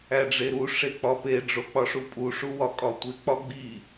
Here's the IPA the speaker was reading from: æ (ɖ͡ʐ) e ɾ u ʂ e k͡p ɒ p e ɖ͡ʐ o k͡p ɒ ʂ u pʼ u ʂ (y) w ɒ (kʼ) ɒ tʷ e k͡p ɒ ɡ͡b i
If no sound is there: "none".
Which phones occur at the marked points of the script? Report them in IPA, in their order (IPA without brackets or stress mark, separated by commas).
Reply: ɖ͡ʐ, u, kʼ